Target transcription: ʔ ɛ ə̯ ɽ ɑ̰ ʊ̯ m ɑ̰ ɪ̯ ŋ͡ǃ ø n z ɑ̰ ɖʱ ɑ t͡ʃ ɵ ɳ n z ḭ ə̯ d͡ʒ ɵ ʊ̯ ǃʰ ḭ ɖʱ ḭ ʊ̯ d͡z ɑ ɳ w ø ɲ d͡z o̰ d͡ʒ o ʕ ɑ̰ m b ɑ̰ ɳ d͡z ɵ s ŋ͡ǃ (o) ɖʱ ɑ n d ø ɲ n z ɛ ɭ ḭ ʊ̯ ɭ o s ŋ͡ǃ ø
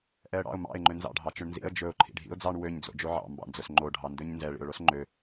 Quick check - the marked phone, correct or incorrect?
correct